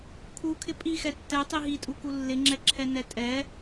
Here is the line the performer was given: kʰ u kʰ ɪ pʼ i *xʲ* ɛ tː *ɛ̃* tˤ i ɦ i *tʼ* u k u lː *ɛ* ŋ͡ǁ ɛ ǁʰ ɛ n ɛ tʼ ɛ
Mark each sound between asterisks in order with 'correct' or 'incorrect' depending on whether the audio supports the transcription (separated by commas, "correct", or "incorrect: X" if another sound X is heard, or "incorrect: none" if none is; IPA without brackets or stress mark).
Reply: incorrect: x, incorrect: ɛ, correct, incorrect: ɪ